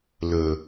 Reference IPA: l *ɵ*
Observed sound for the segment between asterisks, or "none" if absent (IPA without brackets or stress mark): ɵ